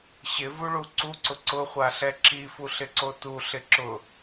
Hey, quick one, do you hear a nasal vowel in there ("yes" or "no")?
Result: no